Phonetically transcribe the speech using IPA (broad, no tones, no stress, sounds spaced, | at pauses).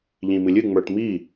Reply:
ʎ ĩ m ɨ lʲ ɨ ŋ͡m ə˞ ʈ m i